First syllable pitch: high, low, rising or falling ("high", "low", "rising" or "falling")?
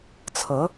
rising